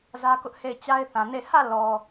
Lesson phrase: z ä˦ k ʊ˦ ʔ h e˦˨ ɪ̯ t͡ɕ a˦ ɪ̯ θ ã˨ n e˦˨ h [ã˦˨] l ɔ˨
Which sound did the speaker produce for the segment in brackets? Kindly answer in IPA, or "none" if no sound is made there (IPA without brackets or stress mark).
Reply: ä˦˨